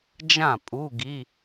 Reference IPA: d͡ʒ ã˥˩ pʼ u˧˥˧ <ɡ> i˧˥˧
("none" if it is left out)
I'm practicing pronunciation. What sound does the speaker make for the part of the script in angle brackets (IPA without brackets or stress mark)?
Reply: ɡ